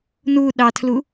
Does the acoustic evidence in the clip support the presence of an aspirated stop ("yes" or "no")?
yes